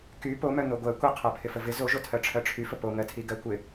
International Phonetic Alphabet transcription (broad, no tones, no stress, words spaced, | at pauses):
ky po mœn̪oɡʷɜ kʷɪqʰɜ pʰɪfəvɪ zoʒotʰɜ ʈ͡ʂʰɜʈ͡ʂʰyfə poŋɜ tʰiɡɜkʷɪ